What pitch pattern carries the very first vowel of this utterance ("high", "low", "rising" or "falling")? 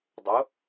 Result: rising